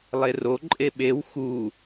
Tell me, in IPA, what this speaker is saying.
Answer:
lˠ e r o ǃʼ e ɓ e w x u

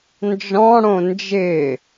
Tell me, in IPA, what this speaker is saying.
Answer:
n d͡ʒ ɔ̃ ɽ õ n d͡ʒ ɪː

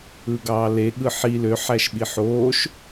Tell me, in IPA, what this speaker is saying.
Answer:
ɯ ɡ ɑː l e ɠ ɯ ħ i l ø ħ æ ʃ ɓ i ħ oː ʃ

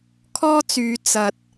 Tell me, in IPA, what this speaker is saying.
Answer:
kʰ ɔː˥ t͡s yː˨˧ t͡s ɐ˨ t̚

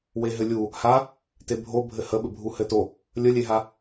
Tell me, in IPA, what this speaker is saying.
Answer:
w e ɦ ɘ lʲ u | h a | t e bʱ o bʱ ɘ h ə ɓ ɘ bʱ u h ɘ t o | lʲ ə lʲ e ɦ a

